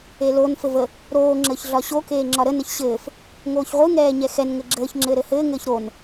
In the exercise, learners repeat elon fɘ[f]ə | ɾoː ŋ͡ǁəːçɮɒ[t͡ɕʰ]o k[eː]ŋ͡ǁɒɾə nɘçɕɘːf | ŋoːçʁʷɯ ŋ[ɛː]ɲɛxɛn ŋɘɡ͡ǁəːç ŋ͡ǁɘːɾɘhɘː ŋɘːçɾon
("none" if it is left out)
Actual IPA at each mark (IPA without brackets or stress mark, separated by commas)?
v, ɕ, eː, ɛː